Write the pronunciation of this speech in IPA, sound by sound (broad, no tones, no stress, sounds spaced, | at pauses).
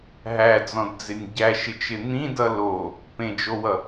ɦ æ d͡z ɔ̃ d d͡z ɪ nʲ ɟ æ ʃ ɪ t͡ʃ ɪ n̪ ĩ d ʌ l o | p ẽ d͡ʒ o w ʌ